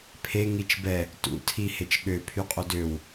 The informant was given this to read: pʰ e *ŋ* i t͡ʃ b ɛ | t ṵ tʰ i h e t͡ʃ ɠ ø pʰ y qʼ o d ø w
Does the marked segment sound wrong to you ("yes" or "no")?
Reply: no